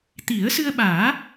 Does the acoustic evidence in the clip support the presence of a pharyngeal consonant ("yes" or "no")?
no